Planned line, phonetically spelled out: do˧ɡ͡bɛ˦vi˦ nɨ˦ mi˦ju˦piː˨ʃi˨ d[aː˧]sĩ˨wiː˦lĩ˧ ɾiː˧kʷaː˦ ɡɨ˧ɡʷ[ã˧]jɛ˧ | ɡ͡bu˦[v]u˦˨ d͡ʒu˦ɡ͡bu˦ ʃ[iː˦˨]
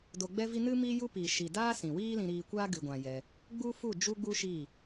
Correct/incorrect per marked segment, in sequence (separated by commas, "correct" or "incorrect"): incorrect, correct, incorrect, correct